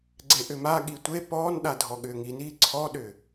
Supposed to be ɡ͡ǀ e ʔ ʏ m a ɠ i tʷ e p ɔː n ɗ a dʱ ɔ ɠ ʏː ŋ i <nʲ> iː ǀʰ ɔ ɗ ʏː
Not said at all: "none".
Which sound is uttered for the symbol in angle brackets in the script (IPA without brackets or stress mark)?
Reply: n